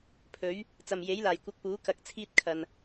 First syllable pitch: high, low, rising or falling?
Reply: rising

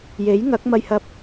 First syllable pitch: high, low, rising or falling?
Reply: rising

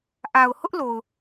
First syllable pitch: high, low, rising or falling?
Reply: low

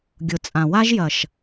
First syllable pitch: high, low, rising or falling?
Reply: low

